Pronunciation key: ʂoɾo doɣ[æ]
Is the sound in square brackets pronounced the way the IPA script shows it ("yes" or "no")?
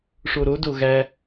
yes